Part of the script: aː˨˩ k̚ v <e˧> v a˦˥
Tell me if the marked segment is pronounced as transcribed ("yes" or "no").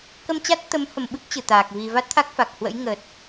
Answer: no